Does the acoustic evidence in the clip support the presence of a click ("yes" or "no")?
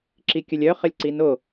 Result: yes